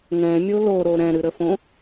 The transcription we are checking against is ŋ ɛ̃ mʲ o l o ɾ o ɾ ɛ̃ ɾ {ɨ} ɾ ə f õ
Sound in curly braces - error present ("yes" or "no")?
no